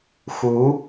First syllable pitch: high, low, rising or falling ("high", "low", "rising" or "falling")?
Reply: rising